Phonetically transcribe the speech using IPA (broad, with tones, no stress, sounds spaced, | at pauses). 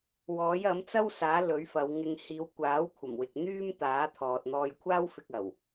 w ɔː˨˥ j ɐ˨˥ m t͡s ɐ˥ w s aː˨˥ l ɵ˨˥ ɥ f ɐ˨˧ w ŋ ɪ˧ ŋ h iː˨˧ w kʷ aː˨˥ w kʷʰ ɐ˨˩ m w ɪ˨ k̚ n̪ yː˥ m t̪ aː˨˥ t̪ʰ ɔː˨ t̚ n̪ ɔː˧ j kʷʰ aː˥ w f ɪ˧ k̚ ɐ˨˩ w